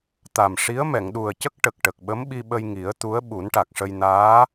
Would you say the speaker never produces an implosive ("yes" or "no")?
no